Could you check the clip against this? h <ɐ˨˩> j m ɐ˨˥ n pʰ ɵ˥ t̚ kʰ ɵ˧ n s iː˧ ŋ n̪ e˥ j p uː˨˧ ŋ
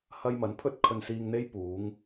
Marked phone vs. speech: incorrect: ɐ˧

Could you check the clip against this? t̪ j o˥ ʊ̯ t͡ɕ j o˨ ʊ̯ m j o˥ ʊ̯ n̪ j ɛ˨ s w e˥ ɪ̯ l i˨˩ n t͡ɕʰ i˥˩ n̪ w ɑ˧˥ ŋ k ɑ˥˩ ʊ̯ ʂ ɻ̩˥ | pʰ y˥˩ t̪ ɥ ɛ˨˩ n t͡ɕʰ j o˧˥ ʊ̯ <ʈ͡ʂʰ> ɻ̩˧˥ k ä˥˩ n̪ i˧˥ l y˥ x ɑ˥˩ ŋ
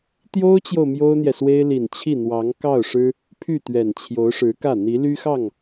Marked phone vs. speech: incorrect: ʂ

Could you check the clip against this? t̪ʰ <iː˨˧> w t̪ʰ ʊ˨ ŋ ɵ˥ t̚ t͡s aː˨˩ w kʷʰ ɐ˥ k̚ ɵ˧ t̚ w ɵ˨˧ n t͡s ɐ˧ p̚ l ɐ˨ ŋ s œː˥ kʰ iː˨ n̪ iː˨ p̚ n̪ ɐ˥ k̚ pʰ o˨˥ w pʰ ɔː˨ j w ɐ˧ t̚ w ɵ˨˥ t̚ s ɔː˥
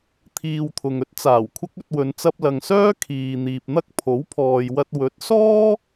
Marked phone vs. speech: incorrect: iː˨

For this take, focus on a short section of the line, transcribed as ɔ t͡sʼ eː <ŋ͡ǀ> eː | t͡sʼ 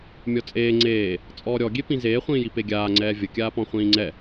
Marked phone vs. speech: correct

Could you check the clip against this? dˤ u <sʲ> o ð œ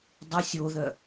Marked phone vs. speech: correct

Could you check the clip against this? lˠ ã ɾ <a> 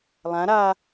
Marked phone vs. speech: correct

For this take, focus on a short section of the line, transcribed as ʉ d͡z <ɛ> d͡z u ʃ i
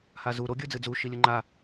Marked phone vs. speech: incorrect: ɨ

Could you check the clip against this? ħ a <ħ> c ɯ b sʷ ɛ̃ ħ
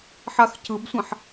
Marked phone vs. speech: incorrect: x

